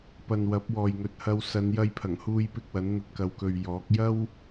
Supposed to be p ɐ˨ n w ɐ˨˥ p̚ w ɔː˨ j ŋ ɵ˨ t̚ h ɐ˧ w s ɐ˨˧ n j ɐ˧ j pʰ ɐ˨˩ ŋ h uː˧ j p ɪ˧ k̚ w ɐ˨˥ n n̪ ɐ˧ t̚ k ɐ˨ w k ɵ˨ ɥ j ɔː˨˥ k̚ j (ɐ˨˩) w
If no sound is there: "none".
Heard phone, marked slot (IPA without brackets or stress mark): ɐ˥